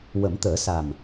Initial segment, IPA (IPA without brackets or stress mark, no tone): w